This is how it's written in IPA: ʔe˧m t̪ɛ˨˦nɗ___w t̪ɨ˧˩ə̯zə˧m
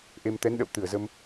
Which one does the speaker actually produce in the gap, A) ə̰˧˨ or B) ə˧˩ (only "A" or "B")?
A